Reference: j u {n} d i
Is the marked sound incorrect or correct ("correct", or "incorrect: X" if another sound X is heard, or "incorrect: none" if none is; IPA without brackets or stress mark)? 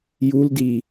incorrect: l